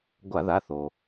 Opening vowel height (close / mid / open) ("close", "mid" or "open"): open